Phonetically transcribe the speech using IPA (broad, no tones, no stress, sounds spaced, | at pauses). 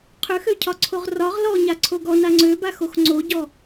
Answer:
qʰ ø x ø cʰ ɒ ǀʰ o ʁ r ɒ ʁ l ɔ ɲ a ǀʰ o ɡ ɔ n a ŋ͡ǀ ø b a x o x ŋ͡ǀ o ɟ ɔ